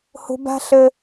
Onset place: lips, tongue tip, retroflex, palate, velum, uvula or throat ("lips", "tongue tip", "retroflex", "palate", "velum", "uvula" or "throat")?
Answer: throat